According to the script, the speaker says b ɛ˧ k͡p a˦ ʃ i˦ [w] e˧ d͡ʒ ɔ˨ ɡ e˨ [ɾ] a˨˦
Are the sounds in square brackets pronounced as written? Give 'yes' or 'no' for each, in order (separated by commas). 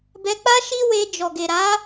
yes, yes